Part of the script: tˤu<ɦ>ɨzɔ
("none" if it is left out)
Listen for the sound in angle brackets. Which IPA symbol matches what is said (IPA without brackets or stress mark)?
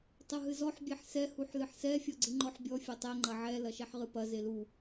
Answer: ɦ